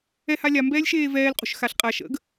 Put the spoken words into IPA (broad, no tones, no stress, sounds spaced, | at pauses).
ɛ h a lʲ a m b ɛː lʲ ʃ eː v ɛː l qʼ ṳ ʃ x a ɬ qʼ a ʃ ə̰ ɡ